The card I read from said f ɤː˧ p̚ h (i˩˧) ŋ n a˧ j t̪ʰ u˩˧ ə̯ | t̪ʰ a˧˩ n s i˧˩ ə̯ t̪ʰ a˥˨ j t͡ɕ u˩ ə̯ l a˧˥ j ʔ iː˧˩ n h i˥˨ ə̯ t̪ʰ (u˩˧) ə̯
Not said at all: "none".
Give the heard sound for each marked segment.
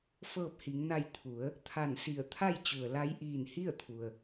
i˩˧, u˩

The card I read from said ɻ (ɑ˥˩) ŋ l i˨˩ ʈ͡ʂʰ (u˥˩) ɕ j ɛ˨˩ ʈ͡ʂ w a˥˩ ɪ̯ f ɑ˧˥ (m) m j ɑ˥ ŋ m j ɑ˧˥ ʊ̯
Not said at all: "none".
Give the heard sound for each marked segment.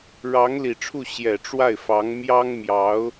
ɑ˧˥, u˥˩, ŋ

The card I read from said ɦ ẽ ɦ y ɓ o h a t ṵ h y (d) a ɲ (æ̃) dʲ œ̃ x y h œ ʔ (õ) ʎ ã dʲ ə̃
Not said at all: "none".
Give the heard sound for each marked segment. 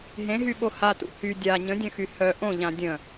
dʲ, ə̃, õ

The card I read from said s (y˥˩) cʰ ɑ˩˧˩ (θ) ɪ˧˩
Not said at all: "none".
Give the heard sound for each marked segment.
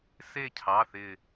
e˥˩, θ

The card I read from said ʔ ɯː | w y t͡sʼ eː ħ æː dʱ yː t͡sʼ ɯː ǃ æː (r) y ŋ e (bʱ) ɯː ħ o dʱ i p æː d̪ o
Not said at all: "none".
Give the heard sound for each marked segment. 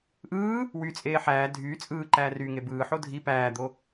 r, b

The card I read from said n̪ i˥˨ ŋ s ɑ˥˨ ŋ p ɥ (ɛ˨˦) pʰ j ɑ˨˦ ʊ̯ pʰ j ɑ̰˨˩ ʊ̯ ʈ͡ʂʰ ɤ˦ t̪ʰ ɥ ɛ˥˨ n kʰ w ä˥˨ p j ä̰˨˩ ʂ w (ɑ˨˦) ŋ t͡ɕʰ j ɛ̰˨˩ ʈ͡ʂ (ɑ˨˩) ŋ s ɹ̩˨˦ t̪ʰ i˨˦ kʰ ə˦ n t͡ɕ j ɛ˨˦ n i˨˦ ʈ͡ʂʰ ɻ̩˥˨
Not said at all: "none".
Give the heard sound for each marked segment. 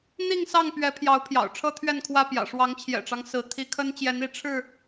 ɛ˨˦, ɑ˨˦, ɑ˦

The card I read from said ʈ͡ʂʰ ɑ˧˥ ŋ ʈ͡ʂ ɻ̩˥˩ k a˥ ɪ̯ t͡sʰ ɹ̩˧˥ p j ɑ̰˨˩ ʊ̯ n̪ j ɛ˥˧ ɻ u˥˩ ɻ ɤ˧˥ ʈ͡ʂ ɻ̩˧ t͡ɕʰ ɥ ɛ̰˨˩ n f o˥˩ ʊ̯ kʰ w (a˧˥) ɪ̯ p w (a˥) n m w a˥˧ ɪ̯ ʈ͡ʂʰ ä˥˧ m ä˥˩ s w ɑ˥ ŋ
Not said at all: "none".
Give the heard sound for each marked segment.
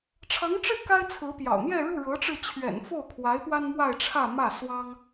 a˧˥, a˥

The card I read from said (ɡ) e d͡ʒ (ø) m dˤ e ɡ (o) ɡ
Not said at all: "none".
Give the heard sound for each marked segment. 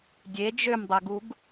dʲ, ø, u

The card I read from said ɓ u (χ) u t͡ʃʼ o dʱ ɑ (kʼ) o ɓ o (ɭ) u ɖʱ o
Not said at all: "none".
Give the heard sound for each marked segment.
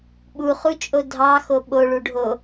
χ, x, ɭ

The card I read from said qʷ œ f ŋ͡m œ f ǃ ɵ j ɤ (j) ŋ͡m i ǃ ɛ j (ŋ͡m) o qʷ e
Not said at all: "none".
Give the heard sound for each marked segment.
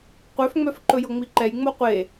none, ŋ͡m

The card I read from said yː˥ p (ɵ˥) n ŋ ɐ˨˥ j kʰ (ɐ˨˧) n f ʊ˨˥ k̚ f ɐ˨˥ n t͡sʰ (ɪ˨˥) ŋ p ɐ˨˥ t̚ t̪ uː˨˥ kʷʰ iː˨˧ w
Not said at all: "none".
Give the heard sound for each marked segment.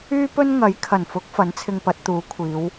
ɵ˥, ɐ˨˩, ɪ˧

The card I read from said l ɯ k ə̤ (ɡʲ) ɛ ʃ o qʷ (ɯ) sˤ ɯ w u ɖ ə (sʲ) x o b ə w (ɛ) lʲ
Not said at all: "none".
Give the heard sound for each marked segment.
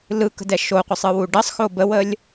d, ɯ, sˤ, ə

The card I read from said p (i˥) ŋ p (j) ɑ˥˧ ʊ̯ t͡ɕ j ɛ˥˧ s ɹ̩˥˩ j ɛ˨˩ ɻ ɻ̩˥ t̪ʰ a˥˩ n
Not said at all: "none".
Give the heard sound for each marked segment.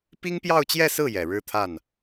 i˥, j

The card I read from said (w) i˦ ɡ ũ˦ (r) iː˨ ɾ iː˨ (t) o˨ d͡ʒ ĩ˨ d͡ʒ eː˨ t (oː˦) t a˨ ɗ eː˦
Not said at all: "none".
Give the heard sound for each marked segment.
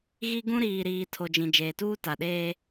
ɣ, ɾ, tʰ, uː˦

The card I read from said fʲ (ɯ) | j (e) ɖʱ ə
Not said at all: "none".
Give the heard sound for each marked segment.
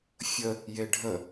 ə, e

